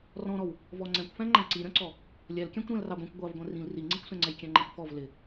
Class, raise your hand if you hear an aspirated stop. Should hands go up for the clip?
no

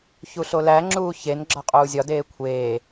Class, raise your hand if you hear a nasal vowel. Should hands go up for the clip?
no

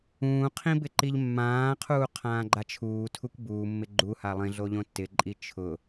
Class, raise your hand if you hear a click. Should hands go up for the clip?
yes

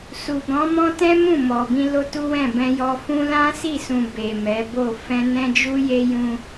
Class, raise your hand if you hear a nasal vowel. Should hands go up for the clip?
yes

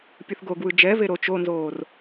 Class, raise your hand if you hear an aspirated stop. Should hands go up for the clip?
no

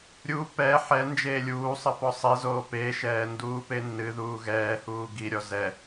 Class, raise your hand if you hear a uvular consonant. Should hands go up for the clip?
no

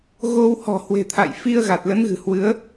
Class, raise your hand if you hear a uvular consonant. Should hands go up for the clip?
no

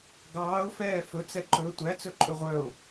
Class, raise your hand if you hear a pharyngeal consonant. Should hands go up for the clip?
no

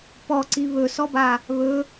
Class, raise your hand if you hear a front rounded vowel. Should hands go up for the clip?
no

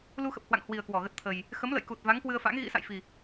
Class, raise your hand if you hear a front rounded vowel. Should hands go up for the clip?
no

